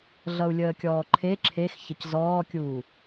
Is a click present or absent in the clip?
present